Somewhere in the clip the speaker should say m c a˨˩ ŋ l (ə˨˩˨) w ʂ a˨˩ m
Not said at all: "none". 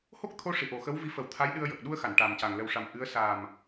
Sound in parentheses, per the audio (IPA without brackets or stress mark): ə˨˩